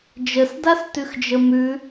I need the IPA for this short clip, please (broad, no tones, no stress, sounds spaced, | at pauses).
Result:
d͡ʒ ə s d a s t ʉ x d͡ʒ ə m ʉ